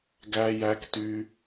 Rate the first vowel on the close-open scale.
open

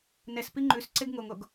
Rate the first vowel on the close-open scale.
mid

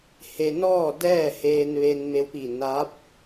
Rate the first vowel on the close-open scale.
mid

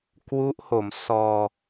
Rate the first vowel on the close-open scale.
close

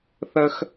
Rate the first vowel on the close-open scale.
mid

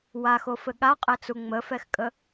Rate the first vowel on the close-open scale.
open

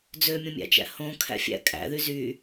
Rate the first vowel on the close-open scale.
mid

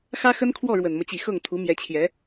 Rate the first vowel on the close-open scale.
open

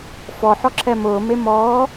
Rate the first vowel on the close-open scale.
mid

